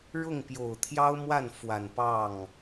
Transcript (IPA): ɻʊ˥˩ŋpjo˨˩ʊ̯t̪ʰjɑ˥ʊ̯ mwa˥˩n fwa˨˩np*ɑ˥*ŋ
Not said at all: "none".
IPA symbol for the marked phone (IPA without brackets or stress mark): ɑ˥˩